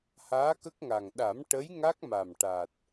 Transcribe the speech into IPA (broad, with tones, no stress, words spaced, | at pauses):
haː˧˥kə˦˥k̚ŋa˨˩ŋ ɗa˨˩˦m ʈə˧˥j ŋa˦˥k̚ma˨˩m ʈa˨˩t̚